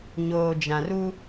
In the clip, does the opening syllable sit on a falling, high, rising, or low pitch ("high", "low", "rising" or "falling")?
low